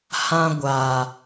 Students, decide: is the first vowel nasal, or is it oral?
nasal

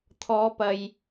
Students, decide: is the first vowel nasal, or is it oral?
oral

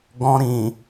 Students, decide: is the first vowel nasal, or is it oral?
nasal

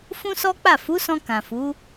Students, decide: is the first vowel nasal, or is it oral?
nasal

